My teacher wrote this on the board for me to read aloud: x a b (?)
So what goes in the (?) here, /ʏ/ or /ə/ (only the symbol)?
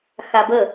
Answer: ə